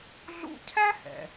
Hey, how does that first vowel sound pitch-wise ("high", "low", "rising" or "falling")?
high